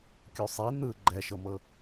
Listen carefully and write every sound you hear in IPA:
kʲ u sˤ i n̪ ɯ ɡ͡ǃ ɛ ʃ ɤ m ɤ

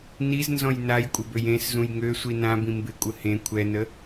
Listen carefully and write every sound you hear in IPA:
n i z n z ɔ̃ j n a j kʷʼ ɪ b ø j ẽ s z ũ j ŋ ø sʷ i n ã b ĩ m b ɪ kʷʼ ə h ẽ kʷʰ ɛ n ə

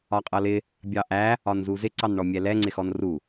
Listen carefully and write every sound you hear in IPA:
ɒ qʼ ʌ l ɪ | bʲ ɑ ʔ æ | ɒ n z u z ɪ ǀ ɑ n ɳ ɔ mʲ ɛ l ɛ ŋ͡ǀ ɪ x ɔ n r u

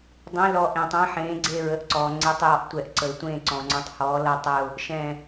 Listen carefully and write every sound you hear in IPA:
dˤ ẽ˨˦ l ɔ˨ ʔ ẽ˨ tˤ ɛ̃˨˦ ħ ẽː˨˦ ɡ͡ǀ e˦˨ ɹ ə˨˦ ʔ ǀ ɔː˨ ŋ͡ǀ e˨˦ tˤ j ɔ˨˦ ʔ tʷ ɛ˨ ʔ ǀ ə˨ ɪ̯ tʷ ẽː˦˨ ǀ ɔ̃˨ ŋ͡ǀ ə̃˨˦ tˤ h ɔː˨˦ l ʌ˦˨ tˤ ə˦˨ ʊ̯ | ʃ ɛ̃˦˨

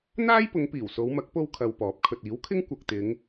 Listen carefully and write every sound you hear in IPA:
n̪ aː˥ j p ʊ˨˧ ŋ p iː˨˩ w s o˨˧ w m ɐ˨˥ k̚ p o˥ w kʰ ɐ˧ w p ɔː˨˥ p̚ kʰ ɵ˨ t̚ iː˨˥ w kʰ ɪ˥ ŋ kʷ ɐ˨ k̚ t̪ ɪ˨˧ ŋ

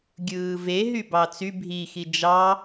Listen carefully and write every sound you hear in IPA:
ɡʲ ɯː v e ɦ y b ɑ t͡s y bʱ i x i d͡ʒ ɑ

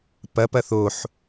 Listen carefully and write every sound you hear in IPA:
p ɐ p ɐ θ o ħ

